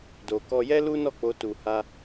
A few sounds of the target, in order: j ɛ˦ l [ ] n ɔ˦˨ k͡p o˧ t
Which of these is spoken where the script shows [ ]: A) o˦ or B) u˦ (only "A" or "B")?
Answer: B